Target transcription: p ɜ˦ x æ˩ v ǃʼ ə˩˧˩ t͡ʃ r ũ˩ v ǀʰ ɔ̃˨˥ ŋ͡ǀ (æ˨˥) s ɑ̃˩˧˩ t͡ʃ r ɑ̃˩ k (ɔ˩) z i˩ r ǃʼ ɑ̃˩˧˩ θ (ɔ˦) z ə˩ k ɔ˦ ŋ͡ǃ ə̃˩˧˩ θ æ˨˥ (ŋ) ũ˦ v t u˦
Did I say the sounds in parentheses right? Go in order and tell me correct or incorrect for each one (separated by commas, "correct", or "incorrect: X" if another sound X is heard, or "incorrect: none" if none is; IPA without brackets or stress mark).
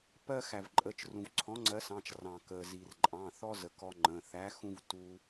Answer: incorrect: ɜ˨˥, incorrect: ə˩, correct, incorrect: x